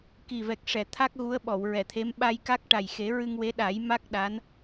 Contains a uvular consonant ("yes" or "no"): no